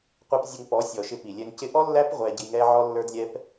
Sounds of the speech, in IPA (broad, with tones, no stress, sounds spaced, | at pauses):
qʷ ɛ˧ p zʲ ʊ˧ ŋ p ɔ˨˦ sʲ ɔ˨ ʃ ɪ˧ p i˨ lʲ ɛ˧ ŋ c ɪ˦ ʔ ɔ˦ lː æ˦ p ʁʷ ɛ˧ ɟ i˧ ŋ ɛ˦ ʕ ɔ˦ lː ə˞˦ d lʲ ɛ˦ p